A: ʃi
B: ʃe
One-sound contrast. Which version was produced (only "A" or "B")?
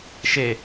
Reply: B